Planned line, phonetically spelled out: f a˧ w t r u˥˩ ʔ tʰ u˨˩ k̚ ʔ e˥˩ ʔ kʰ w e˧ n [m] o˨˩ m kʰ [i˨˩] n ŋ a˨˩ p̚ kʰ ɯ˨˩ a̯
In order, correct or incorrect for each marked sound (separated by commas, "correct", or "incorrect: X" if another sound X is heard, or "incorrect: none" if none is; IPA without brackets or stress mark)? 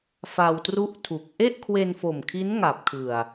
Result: incorrect: f, incorrect: i˦˥